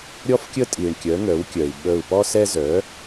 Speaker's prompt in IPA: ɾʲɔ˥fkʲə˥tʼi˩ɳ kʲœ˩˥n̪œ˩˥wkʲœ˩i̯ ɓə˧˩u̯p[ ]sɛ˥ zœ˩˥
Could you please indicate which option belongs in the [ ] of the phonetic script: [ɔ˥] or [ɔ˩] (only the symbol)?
ɔ˥